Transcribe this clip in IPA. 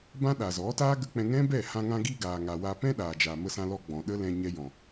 b ã˦ ɗ a˨ z ɔ˨˦ t aː˦ ɡ ə˦ k͡p ɛ̃˧ ŋ ɛ̃˦ b ɛ˦˨ h ã˧ ŋ ã˧ ɡ i˧ ɡ aː˨ ŋ a˨ w a˧ p ɛ̃˦ ɗ aː˨ d͡ʒ a˨ m ə˧ s ã˧ l ɔ˧ ɡ͡b ɔ̃˨ ɗ ə˦ l ɛ̃˧ ɲ ɛ˧ j ɔ̃˨

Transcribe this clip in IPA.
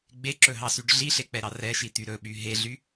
ɡ͡b e ǁ ɵ ɦ ɑ s y ɖ ɮ i ɬ e k͡p ɛ ɾ ɑ r ɛ ʃ i t̪ y ɾ ɵ ɓ y ɦ e ɮ y

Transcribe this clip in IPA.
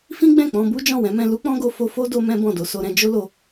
f ĩ˦ ɡ͡b ɛ̃˦˨ k͡p ɔ̃˧ b u˦ d͡ʒ ɔ̃˦˨ w ɛ̃˨˦ m ɛ̃˧ l u˦ k͡p ɔ̃˦ ɡ o˧ f o˧ f o˦ d o˧ m ɛ̃˦ b ɔ̃˦˨ d o˧ s o˧ ɾ ɛ̃˧ d͡ʒ o˦ l o˧

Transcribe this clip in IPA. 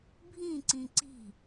bʱ ĩ ǀ ĩ ǀ i̤

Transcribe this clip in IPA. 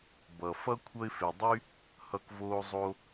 b ʌ˨ f ʌ˥ kʷʰ ʌ˦ ɪ̯ f e˨ dˤ y˥ | h ʌ˦ k v oː˦ zˤ o˦

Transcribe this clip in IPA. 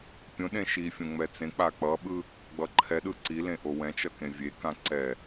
pʲ õ ɗ ẽ ʃ i fʲ õ ŋ͡m ɛ t͡s ẽ k͡p a k͡p ʌ ɓ ɯ | ɡ͡b ʌ ǃʰ ɛ ɗ ɯ ǀ i l ẽ ʔ o w ɛ̃ t͡ʃ ʌ k ẽ vʲ e k ã ǀ ɛ

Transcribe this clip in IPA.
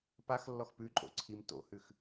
p a x lː ɔ x p ʉ ǃʼ o̰ ǀʰ i m t o̰ h ʉ x

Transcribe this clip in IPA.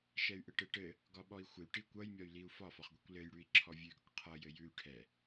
ʃ ɛ y̯ ʔ ɘ ʈ ɘ ʈ ɘ | ɡ ɒ ɓ ɔ i̯ xʷ ɘ y̯ ʈ i kʷ ʌ j mʲ ɒ y̯ l i u̯ f ɒ f ɒ χ ɡʷ i kʷ l ɘ j ɽ ʉ i̯ ǁʰ ɔ vʲ ʉ ɡ ʌ kʷ qʰ ʌ j ɘ j ʉ y̯ ʈʰ ɛ

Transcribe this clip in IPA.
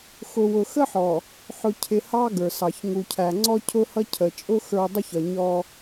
x ʊ˨ w ʊ˨ x ə˦ ħ ɔ˨ | ħ ʊ˨ cʰ ɪ˨ h ɑ˦ ɡ ə˞˨ s ɑ˨ ç ŋ u˨ cʰ æ˨ ŋ͡ǀ ɔ˦ cʰ ʊ˦ h ʌ˦ cʰ ə˨ t͡ʃʼ ʊ˦ x ə˞˦ dˤ ʊ˦ ç ʌ˨ ɲ ɔ˦

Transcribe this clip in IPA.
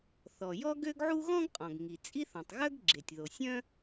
θ ɔ˩ j ɔ˥ ɡ ø˥ ɡ ʕ u˥ ɣ ɔ̃˥ ɡ qʼ ɔ̃˩ ɡ ŋ i˩ t͡sʼ i˥ θ ɔ̃˩ tˤ ɣ œ˥ ɡ ɡ͡ǁ e˩ tʲ ð o˩ sʲ œ̃˥

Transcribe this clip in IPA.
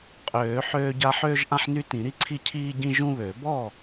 qʼ øː˨˩˦ ħ øː˦ ɟ a˦ ħ øː˦ ʒ ʔ ã˦ ħ n y˦ t ĩ˨˩˦ ɾ i˦ ǀʰ i˥˩ cʰ iː˦ ɟ ĩ˦ ʒ ũ˦ β ø˨˩˦ b ɔ˥˩

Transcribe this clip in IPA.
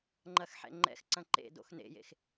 ŋ͡ǃ ɐ x ħ ɛ̰ ŋ͡ǃ ɛ̰ x ǀ ɐ̃ ǃ ḛ d o̰ x n ḛ j ḛ x

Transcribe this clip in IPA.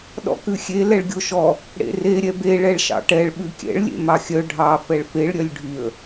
ɗ ɔ̰ k ʉ xʲ e l ɛ ɭ ɡʲ o ʃ ɔ | ɽ ḛ r e ɾʲ ɛ b e ɭ ɛ ɭ ʃ ɑ̰ ʈ ɛ ɭ ɓ ʉ kʲ ɛ̰ ɭ lʲ ḛ m ɑ xʲ œ ɖʱ ɑ f ɛ ɭ f e ɭ ɾʲ œ lʲ ɖʱ y ə̯

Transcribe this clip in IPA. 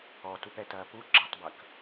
ɔː t u p ɛ t ɐː p u ɡ͡ǁ ɐ tˤ b ɐ k

